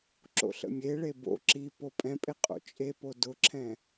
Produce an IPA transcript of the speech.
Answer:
ǁ o̰ ɬ ə̰ mʲ e ɭ e b o̰ ǁ i p o pʼ ɛ̃ pʼ e qʼ o̰ t͡ʃʼ e p o d ʊ ǁʰ ɛ̃

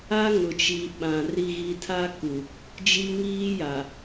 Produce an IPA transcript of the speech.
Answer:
a˦ ŋ ʊ˨ t͡ʃ i˨ ɓ ã˨ r i˨ ɣ i˨ tʰ a˦ k u˨ | d͡ʒ i˦ ŋ iː˦ j a˨

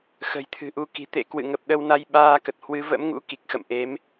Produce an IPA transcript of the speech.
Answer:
x ə̤˨˩ j t̪ʰ ɨ̤˨˩ ʔ u˧ k i̤˨˩ t̪ ḛ˧˨ k w ɨ̰˧˨ ŋ ə˨˩ p̚ ɗ ə˧ w n a˧ j ɓ aː˧ k ə˨˩ t̚ h w ɨ˨˦ v ə̰˧˥ m ŋ ṵ˧˥ k i˨˩ k̚ x ə̰˧˨ m ʔ e˨˦ m

